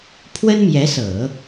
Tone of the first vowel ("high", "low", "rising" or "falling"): high